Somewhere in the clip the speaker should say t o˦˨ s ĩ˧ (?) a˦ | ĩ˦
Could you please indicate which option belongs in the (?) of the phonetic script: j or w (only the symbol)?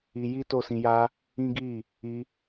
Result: j